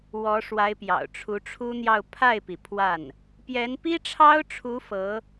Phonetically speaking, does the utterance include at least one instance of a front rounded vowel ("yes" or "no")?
no